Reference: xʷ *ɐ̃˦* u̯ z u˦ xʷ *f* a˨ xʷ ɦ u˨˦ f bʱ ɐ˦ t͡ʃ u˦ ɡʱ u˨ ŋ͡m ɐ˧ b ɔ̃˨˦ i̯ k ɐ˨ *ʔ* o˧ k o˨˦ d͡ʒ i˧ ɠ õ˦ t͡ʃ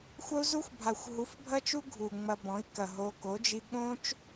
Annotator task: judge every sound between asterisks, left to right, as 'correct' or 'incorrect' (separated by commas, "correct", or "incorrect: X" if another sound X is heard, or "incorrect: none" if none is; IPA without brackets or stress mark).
incorrect: ɐ˦, incorrect: bʱ, incorrect: ɦ